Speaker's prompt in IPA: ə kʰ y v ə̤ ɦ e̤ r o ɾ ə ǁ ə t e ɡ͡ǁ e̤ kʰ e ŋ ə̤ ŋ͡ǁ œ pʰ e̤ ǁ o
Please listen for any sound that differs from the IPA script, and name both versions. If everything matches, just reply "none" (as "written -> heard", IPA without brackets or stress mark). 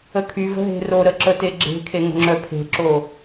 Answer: none